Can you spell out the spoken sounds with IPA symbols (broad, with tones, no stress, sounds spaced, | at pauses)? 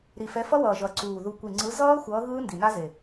ɾ i˨˩ f ɛ˨˦ f ʌ˦˥ w ʌː˨˩ ʒ ʌ˨˩ ǀ uː˨˩ ð u˨˩ kʷ i˨˩ ŋ͡ǀ ɯ˨˦ z ʌː˦˥ xʷ ʌː˨˦ ɣ ɯː˦˥ n d i˨˩ n a˦˥ z e˨˩